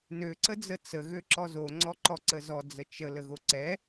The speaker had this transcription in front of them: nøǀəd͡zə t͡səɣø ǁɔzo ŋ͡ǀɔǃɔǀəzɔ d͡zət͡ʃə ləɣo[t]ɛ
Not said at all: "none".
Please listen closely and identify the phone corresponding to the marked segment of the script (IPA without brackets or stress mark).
ǀ